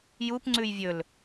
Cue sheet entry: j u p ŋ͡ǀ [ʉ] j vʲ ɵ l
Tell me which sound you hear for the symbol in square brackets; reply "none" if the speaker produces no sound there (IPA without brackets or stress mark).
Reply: ʉ